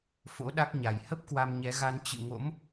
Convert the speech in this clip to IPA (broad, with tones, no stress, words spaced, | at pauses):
fo̰˧˥ɗa˦˥k̚ɲa˨˩j hə˦˥p̚ kwa˧mɲɛ˨˦ɣa˧n t͡ɕɨ̰˧˨ ŋo̰˧˥m